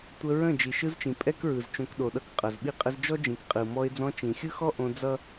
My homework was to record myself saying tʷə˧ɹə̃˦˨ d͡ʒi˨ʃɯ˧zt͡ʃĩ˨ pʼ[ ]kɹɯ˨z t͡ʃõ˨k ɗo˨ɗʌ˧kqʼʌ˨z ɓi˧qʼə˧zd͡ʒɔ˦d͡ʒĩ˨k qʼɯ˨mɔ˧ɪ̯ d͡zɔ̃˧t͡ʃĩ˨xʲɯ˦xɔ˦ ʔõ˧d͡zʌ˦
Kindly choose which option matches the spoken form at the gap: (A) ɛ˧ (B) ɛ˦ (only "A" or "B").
B